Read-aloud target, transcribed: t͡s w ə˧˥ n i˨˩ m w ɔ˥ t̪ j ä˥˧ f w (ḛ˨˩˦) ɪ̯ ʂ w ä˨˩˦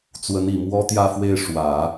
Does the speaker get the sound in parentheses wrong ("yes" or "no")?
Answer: yes